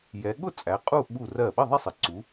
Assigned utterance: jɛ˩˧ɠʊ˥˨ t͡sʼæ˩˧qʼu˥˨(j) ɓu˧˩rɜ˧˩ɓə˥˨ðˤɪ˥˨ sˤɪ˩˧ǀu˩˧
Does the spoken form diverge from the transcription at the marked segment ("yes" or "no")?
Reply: yes